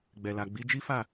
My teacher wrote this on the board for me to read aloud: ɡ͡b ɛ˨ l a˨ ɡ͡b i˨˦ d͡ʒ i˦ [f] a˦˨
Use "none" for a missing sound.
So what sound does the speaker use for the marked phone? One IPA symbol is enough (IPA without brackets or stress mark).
f